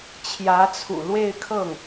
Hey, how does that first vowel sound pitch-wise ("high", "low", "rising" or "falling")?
rising